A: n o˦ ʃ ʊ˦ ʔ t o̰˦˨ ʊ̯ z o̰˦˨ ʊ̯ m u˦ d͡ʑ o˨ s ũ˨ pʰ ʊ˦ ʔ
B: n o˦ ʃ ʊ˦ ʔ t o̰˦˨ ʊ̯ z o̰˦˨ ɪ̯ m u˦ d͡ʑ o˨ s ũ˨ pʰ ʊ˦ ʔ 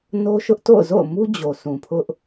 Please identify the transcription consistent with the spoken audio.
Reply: A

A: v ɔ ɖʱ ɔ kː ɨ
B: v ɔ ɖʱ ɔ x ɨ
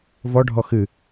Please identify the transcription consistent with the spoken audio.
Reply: B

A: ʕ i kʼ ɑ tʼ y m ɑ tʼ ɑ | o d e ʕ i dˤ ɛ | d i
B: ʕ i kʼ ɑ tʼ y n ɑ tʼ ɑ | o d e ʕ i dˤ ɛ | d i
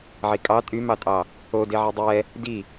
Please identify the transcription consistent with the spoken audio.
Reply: A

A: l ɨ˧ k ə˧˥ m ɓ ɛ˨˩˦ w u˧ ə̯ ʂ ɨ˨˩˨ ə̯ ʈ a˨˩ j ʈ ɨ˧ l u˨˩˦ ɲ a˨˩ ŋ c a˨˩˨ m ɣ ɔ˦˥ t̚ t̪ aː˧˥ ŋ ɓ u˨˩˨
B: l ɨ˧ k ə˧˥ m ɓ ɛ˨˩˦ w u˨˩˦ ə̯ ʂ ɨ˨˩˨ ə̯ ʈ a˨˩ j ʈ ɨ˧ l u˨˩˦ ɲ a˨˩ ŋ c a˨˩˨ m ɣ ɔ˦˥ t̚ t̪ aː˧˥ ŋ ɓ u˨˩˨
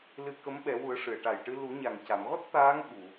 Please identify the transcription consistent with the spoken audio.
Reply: B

